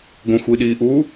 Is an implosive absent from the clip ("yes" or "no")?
no